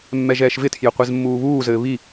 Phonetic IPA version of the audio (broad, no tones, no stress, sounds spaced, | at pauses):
mː ɛ ʒ ɛː ʃ v ɪ tʰ j ɘ qʷ ɛ z mː uː β uː z ɘː β i